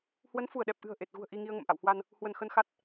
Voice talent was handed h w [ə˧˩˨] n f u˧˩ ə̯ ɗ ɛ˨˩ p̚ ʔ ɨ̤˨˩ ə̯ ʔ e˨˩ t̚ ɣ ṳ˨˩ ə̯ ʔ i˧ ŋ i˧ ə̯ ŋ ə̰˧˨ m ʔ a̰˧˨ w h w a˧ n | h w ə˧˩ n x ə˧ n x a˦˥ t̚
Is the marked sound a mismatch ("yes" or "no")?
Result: yes